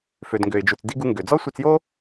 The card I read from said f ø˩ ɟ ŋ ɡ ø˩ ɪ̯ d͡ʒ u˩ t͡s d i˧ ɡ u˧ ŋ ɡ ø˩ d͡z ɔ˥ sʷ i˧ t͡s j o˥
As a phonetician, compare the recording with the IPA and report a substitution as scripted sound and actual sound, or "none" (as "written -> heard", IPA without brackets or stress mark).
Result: ɟ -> d